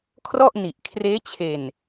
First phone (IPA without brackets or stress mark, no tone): kʰ